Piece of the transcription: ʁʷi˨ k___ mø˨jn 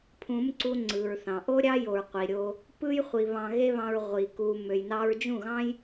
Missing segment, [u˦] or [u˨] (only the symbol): u˨